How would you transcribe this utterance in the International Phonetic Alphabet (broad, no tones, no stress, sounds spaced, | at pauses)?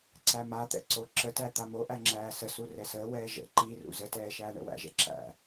ǀ æ m a t̪ ɛ̰ ǀ o ǁ ə t æ t̪ a m o ʔ æ ŋ͡ǁ æː s ə s u r ɛ s əː w ɛː ʒ ə̰ ǃ i r ṵ z ə t ɛː ʃ æː ɳ ɛ̰ w æ̰ ʒ ɛ̰ ǁ æ̰